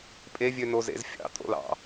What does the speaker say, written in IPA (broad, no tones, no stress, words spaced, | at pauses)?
pʼevʲønozḛz fʲɑ̰tʼo̰l ɑ̰